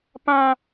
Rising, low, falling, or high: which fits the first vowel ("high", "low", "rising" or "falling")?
high